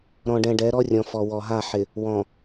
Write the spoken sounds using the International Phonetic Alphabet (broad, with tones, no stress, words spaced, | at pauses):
ɾɔ̃˨ɖɛ̃˨ɖɛ˨˦ ɾɔ˦rʲɔ̃˨ fɔ˨wɔ˨ɦa˦˨ ħɪ˨ | wɔ̃˨